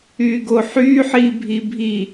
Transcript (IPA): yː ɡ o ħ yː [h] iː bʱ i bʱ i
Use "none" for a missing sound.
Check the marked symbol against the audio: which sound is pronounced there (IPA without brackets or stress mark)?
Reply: ħ